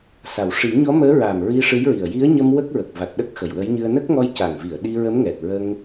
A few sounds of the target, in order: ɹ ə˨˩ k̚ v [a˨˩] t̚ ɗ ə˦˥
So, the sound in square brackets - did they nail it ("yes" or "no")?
yes